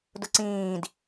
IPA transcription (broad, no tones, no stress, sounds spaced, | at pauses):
d ʊ ǀ ĩː d